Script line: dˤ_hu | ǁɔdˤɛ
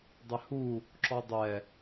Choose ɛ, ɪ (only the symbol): ɪ